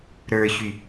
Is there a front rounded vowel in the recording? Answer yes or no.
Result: yes